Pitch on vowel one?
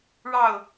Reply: falling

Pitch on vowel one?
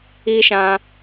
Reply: high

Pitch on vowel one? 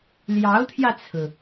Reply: rising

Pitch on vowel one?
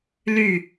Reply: falling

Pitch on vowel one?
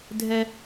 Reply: high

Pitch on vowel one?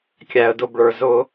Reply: low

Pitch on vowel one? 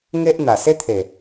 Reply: high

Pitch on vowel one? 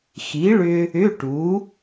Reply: rising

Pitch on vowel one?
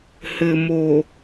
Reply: low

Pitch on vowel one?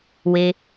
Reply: low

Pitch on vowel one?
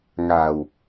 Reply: low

